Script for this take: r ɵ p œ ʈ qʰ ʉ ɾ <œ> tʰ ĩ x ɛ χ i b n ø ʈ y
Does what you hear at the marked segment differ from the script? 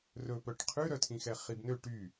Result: no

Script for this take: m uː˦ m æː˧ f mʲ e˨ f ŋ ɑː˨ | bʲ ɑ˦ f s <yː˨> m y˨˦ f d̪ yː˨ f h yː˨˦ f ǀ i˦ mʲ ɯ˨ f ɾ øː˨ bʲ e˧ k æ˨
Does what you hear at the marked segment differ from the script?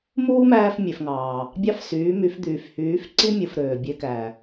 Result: yes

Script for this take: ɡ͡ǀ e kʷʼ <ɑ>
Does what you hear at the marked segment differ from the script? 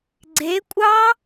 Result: no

